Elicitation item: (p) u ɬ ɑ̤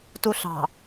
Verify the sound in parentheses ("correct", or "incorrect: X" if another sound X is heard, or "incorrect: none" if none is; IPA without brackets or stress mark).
incorrect: t